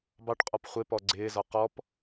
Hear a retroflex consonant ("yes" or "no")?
yes